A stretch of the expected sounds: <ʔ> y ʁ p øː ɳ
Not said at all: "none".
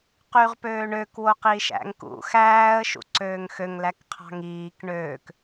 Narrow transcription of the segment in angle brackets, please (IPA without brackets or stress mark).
q